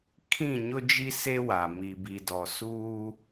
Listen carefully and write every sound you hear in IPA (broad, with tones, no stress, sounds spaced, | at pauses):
kʰ ĩ˦˨ ɲ ʊ˦ d͡ʒ i˦ s e˦ w a˨ m i˨ b i˨ d ɔ˨ s uː˦